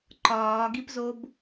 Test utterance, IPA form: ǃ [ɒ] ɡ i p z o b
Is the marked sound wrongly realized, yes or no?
yes